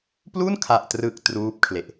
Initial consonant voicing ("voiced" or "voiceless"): voiceless